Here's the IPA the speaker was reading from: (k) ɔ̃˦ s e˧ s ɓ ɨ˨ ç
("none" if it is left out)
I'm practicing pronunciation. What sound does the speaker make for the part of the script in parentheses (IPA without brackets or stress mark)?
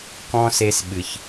k